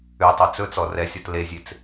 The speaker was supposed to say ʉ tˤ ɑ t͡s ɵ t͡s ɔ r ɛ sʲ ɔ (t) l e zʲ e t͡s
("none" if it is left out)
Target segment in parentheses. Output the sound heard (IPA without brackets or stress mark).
t